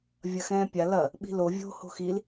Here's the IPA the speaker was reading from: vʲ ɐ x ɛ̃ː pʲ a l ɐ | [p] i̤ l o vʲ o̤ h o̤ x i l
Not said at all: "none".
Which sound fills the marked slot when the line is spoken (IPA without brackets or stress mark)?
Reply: ɓ